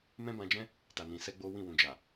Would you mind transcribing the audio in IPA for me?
m ɛ̃˦ b ã˧ d͡ʒ ɛ̃˦ | t a˨ n ĩ˨ s ɛ˧ ɡ͡b o˦ w ĩ˦˨ w ũ˨ d͡ʒ a˨

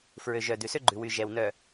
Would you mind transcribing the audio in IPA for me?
f ɹ ø˨ ʒ œ˨ d ʉ˨ s ø˦ ɡ͡ǃ ʉ˨ w y˨ ʒ ɛ˨ w n œ˨

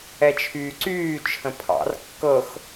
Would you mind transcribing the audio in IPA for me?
ɛ t͡ʃʰ yː ǀ yː t͡ʃʰ ə̃ pʰ ɑ̰ r kː ɤ x

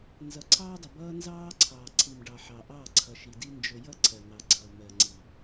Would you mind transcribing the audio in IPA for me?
n z ʌ˨ ǀʰ ɑː˦ dˤ ʊ˨ b ʌː˦ n z ɑː˦ ǀʰ ɑː˨ ǀʰ i˨ m ɖ ɑ˨ ħ ɑ˨ ʔ ɑ˦˨ ǀʰ ʌ˨ ʃ i˨ d i˦ n d͡ʒ ʊ˨ j ʌ˦ ǀʰ ɜ˨ n̪ ɑ˨ ɡ͡ǀ ʌː˨ m ɜ˨ ŋ͡ǀ i˨

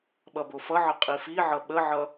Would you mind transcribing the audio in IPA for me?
ɓ ʌ b o f ʌ ʕ ə qʼ i f i ʕ ʌ ɓ ə ʕ ʌ

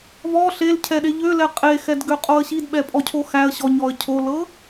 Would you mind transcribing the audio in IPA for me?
v ɔ ɬ e l cʰ ɛ ɗ e ʎ ø l ɛ qʼ e x ɛ d ɡ ø qʼ o ə̯ ɕ i d ɓ ɛ pʼ ɔ cʰ o x æ ə̯ ɕ ɔ ɲ ɔ ə̯ cʰ o l ɤ

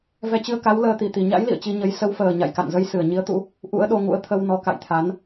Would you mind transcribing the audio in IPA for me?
v ɛ˧ t͡ɕ ɨ˧ ə̯ k a˨˦ w l əː˧ t̪ i˨˩ t̪ i˨˩ ɲ a̰˧˥ j l ḭ˧˨ ə̯ t͡ɕ i˧ ɲ ə˨˦ j s ə˨˦ w f əː˨˩ ɲ a̰˧˨ j k a̰˧˨ n z ə˧ j s ɨ˧˩ ə̯ ɲ i˨˦ ə̯ t̪ ṵ˧˥ | ʔ ṵ˧˥ ə̯ ɗ o˧ ŋ ṵ˧˥ ə̯ t̪ʰ ə˧ w n ɔ˨˦ k a̰˧˨ j t̪ʰ a˨˦ n

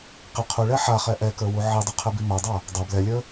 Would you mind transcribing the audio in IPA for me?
q i qʰ u ɭ ɛ ħ a χ ɛ ʔ ɛ k ə˞ w u ʕ i dˤ u qʰ ɛ b i m a dˤ a | dˤ a b l ɛ lʲ ə˞

